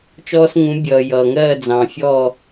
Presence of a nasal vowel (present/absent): present